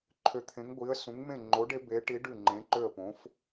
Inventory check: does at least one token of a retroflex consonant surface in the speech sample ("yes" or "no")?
yes